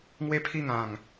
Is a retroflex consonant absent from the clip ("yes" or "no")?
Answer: yes